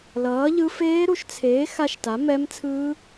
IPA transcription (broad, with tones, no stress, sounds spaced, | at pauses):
l ʌː˨˥ ʎ ɯ˦˥ f eː˦˥ ɾ u˨˥ ʃ t͡sʰ eː˨˥ x a˦˥ ʃ t a˨˥ m ɛ˦˥ m t͡sʰ ɯː˦˥